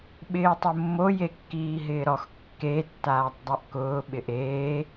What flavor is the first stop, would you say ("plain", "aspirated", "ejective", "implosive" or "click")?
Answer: implosive